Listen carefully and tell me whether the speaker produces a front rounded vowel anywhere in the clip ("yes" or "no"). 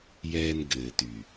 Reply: yes